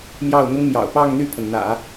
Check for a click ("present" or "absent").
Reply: absent